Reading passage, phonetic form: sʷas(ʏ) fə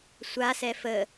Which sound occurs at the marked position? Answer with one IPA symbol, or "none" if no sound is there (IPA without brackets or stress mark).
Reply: ɛ